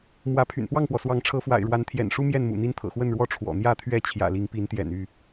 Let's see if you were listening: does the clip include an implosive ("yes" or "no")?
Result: no